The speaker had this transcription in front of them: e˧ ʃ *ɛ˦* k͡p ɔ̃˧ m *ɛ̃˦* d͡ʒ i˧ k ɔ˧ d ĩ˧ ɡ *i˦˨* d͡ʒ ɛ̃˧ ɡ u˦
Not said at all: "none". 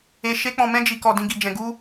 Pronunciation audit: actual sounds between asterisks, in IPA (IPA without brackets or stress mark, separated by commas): e˦, ɛ̃˦, i˧